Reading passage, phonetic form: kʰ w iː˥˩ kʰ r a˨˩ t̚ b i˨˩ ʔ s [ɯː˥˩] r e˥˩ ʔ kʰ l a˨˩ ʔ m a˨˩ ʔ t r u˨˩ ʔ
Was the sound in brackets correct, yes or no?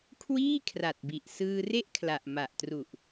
no